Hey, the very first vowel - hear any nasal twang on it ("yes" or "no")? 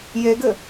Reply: no